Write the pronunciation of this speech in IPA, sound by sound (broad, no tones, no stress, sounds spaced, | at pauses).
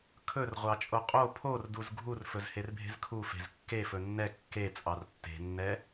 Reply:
kʰ ɵ r ʁʷ ɑ t͡ʃʼ o qʼ o pʰ o r d u z ɡʱ u r f ɵ z h e r bʱ e̤ z kʰ u f e̤ z kː e f ɵ nː ɛ kː e t͡sʼ ɑ r tː e̤ nː ɛ